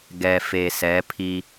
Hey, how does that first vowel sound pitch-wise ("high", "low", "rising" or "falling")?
low